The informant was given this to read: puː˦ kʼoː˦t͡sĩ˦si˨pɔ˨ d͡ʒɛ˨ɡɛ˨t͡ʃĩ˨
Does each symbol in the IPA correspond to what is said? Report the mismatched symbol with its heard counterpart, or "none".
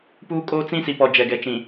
none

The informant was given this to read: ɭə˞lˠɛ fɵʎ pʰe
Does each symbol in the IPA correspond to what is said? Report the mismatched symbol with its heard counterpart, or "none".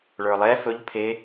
none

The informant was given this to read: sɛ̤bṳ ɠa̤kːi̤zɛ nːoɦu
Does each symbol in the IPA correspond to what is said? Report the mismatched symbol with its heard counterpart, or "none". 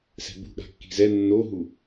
none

